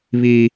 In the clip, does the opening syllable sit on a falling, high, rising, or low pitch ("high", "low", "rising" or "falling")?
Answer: high